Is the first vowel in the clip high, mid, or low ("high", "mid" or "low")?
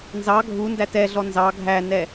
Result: low